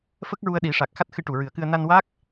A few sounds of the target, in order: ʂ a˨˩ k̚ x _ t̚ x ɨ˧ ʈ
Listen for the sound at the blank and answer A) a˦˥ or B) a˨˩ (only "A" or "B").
A